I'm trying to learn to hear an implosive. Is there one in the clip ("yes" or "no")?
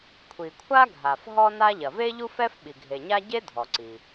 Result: yes